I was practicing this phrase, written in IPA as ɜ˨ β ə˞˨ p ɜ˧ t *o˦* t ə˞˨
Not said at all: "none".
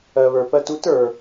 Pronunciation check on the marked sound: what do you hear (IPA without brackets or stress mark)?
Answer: u˦